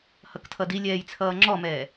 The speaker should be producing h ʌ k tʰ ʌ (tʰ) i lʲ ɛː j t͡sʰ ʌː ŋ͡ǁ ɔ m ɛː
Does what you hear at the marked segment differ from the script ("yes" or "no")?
yes